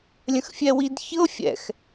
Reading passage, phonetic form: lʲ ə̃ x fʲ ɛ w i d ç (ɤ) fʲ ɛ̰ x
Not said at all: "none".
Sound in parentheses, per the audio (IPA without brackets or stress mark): ɤ